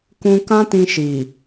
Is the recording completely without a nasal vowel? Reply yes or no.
no